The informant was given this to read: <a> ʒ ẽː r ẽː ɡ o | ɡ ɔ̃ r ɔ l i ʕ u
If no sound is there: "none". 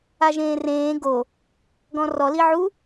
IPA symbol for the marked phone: a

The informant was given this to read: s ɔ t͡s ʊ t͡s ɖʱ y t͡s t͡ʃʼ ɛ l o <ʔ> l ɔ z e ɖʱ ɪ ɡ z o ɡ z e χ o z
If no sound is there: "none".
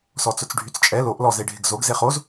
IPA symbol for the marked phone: ʔ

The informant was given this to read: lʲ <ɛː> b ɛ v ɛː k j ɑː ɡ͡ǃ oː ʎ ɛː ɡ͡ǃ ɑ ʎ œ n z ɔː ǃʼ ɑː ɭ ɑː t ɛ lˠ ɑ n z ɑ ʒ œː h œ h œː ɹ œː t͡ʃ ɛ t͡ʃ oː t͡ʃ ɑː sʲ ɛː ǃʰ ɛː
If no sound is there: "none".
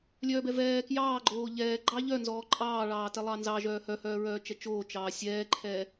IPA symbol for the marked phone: œː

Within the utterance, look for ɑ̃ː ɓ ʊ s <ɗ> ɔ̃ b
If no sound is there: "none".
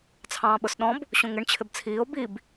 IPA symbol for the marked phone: ɗ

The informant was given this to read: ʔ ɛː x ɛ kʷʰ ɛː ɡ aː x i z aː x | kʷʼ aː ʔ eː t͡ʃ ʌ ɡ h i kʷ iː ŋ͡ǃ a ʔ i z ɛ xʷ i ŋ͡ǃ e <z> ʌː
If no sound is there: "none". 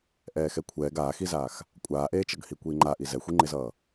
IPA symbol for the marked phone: z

